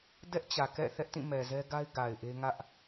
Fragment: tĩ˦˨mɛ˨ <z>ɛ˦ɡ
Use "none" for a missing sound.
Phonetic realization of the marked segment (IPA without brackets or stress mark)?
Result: z